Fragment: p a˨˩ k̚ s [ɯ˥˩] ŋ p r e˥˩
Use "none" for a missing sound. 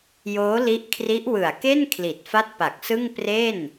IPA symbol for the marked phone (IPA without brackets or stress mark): ɯ˥˩